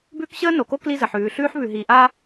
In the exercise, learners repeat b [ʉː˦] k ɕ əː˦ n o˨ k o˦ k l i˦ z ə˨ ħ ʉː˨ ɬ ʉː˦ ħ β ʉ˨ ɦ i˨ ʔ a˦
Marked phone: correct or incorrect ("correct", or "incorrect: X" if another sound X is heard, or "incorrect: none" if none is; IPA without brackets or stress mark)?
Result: correct